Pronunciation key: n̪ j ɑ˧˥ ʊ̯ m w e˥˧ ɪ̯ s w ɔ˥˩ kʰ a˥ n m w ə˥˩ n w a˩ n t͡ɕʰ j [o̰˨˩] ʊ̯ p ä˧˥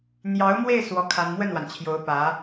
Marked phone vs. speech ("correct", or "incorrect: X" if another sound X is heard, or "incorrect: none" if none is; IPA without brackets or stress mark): incorrect: o˧˥